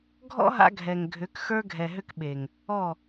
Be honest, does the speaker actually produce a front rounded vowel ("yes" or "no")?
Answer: yes